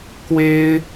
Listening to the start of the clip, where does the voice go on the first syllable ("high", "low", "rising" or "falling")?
high